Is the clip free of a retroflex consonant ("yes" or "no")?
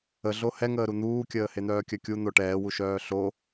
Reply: no